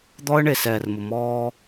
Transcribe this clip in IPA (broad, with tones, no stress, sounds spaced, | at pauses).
d̪ ɔ˦ ə̯ ɳ e˨ s ɛː˨ r m ʊ˨ m ɔː˦